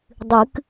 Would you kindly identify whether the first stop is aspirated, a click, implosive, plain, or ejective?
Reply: plain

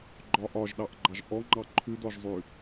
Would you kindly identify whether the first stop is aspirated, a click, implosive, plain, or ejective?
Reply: click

